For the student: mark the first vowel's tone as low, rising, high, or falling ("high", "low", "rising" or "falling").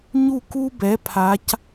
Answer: falling